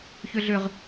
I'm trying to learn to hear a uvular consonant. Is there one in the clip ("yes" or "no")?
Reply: yes